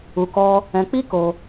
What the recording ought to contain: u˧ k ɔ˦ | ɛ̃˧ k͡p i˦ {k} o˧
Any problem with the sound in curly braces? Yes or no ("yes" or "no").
no